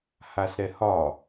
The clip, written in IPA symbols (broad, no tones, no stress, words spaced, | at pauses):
hasɾɛhɒ